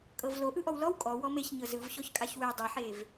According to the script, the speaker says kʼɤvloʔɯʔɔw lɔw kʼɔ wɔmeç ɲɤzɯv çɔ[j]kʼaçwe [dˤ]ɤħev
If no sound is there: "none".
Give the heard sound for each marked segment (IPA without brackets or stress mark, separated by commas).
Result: ç, dˤ